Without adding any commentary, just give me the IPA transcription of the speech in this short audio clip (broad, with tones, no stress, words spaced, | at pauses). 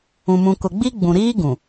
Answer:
ũ˨mũ˨kʊ˨ɡ͡bi˦ ɡ͡bũ˨ɾiː˦ ɡũ˨